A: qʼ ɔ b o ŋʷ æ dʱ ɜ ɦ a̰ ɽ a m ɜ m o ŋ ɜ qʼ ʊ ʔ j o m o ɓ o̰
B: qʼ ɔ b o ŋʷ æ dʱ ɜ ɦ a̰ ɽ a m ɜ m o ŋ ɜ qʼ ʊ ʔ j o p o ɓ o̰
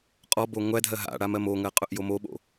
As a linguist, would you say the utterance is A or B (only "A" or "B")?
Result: A